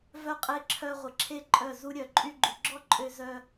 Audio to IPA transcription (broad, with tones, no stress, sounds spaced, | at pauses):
v œ˧ qʼ e˧ ǁʰ œ˧ ʁʷ ə˧ ǁʰ e˦ ǃʼ œ˦˨ z u˦ ɾʲ œ˧ ǃʼ y˦ ɡ͡ǃ y˨ ɡ͡ǁ ɔ˦ ǃʼ ø˧ z œ˧